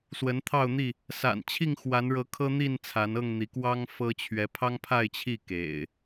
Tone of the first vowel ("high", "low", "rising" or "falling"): rising